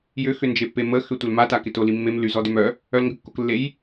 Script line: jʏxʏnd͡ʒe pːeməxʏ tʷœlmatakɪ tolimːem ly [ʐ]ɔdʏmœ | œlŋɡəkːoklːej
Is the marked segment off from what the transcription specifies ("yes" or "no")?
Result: yes